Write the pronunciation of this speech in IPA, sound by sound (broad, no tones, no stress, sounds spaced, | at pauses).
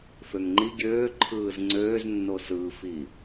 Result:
f ø ŋ ŋ͡ǃ i ɡʲ øː ǃʰ ɯː z ŋ͡ǀ øː z nː o s ɯ f i